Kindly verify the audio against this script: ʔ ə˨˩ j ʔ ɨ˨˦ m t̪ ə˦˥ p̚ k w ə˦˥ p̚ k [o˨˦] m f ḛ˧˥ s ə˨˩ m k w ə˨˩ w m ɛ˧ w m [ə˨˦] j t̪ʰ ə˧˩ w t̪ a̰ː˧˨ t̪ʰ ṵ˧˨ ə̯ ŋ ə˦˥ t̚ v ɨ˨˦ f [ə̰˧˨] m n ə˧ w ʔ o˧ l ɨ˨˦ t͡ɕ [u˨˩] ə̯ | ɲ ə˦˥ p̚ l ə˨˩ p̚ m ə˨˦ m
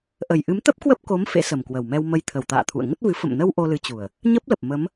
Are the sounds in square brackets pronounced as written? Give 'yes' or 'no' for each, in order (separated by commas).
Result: yes, no, yes, yes